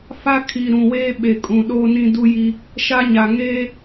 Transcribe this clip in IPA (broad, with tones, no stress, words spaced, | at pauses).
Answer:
fa˦ kʰi˨ ɾũ˨weː˦ ɓe˨kʼũ˨ɗoː˦nĩ˦ du˦ji˦ | ʃa˦ɲa˨ ŋeː˦